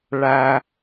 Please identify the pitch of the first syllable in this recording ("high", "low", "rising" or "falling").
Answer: low